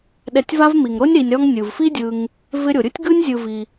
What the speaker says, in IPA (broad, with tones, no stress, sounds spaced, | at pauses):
ɗ ɛ˨ tʲ v a˦ v m i˩ ŋ ɾ o˥ nʲ ɾ i˨ nʲ ɾ ɔ˥ ŋ nʲ ɯ˩ v f i˥ dʲ ɯ˨ ŋ | v ɪ˦ ɾʲ o˩ ɾʲ ɯ˥ tʲ ɡ ɯ˥ nʲ zʲ ɯ˨ v i˩